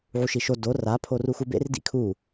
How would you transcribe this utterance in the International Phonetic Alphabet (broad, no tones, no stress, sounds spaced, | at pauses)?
ʕ u ʃ i ʃ o d o r a pʰ o r u x u b ḛ r d ḭ kʰ u